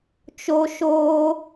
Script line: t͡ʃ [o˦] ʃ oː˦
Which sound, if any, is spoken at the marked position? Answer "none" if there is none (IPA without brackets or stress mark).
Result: o˦